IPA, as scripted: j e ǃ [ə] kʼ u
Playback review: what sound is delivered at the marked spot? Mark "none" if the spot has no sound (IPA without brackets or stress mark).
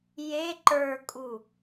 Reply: ə˞